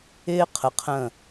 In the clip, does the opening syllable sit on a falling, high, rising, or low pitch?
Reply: high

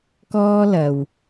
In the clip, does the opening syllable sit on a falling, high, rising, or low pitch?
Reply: high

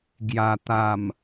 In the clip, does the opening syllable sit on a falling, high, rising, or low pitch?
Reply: low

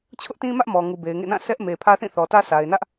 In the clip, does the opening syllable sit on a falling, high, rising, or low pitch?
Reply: high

